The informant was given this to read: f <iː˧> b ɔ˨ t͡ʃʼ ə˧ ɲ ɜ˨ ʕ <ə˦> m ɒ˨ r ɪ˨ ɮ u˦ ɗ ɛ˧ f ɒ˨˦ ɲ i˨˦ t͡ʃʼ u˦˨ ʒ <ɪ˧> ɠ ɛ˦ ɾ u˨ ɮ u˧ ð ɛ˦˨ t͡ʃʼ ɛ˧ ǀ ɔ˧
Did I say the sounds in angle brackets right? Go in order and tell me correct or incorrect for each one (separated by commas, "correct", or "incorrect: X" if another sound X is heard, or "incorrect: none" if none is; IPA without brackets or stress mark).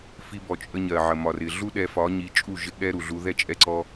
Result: incorrect: i˧, incorrect: ə˨, incorrect: ɪ˦